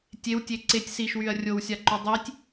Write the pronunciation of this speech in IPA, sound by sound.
tʲ e w tʲ e ǀ e tʲ s i ʃ w y ɐ̯ rʲ o w sʲ a ǃ y dˤ i tʲ

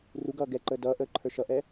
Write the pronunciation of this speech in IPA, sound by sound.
r u ɡ ʌː ɡ ɛ ǃ əː d ʌː ʔ əː ǃʰ ə˞ ʃ ʌ ʔ ɛ

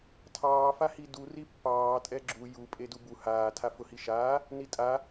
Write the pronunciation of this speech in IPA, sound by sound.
tʰ ɑː f a h i d u r i pː ɑː tʼ ɛ ɡ͡ǁ u j u pʼ e d u b u h aː tʰ a f ʊ h i ʃ aː | n i tʼ a

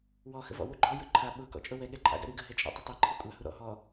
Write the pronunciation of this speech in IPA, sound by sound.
w ɔ x ə̰ v ɔ̰ w u ɡ͡ǃ ɔ j ʊ ǃʰ a ɓ ʊ k ɔ̰ t͡ʃʼ ʊ w ɛ ɠ ɛ ǃʼ a̰ ɡ a̰ ɾ ɨ ɡ ə ɦ ɛ t͡ʃʼ ɔ̰ tˤ ə tˤ e ǃʰ ɨ kʷʼ a h u ɾ ɔ̰ ɦ ɔ

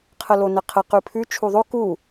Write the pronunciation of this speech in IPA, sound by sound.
qʰ ə l o n ɛ qʰ ə q ʉ pʰ ʉ t͡ʃʰ u ðˤ o k u

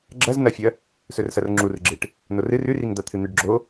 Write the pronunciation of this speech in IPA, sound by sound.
ɡ͡ǁ ɐ z n ɐ fʲ ɐ | s ɵ r s ɐ r ŋ͡ǁ u r ɡ͡ǁ e ʈ | n o r ɨ r ʉ r i ŋ d̪ a t̪ʰ ɨ n̪ ɨ ɖ ɡ͡ǁ o

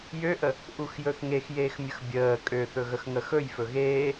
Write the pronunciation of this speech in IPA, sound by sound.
j ø ʔ ə | ʔ u x j ɵ θ ŋ e x j eː x mʲ ə x bʲ əː kʼ ø θ ɵ ɣ ə x ŋ ə x ɵ j f ɵ ɣ eː

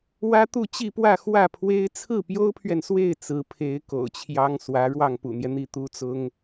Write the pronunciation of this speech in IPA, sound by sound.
w ä˥ t̪ u˥˧ t͡ɕ i˥˧ p w ä˥˧ x w ä˥˩ pʰ w e˥ ɪ̯ t͡sʰ ɹ̩˥˩ p j o˥ ʊ̯ pʰ ɥ ɛ˨ n s w e˥˩ ɪ̯ t͡s ɹ̩˧˥ pʰ e˧˥ ɪ̯ k o̰˨˩ ʊ̯ t͡ɕʰ j ɑ˥ ŋ s w ä˧˥ ɻ w ɑ˥˩ ŋ p ṵ˨˩ n̪ j ɛ˦ n̪ i˥˩ t̪ u˥ t͡s ʊ˥ ŋ

